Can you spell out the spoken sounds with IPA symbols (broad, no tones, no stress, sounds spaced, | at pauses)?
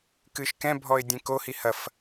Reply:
k ɨ ʃ k ɛ̃ bʱ ɔ ɪ̯ dʲ ẽ k o h i h ɐ f